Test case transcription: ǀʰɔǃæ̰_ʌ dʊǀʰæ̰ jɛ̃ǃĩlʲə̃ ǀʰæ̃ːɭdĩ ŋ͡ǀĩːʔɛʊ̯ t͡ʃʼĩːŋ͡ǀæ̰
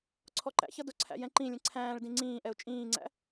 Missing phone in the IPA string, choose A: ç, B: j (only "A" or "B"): A